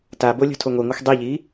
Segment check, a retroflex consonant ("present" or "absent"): absent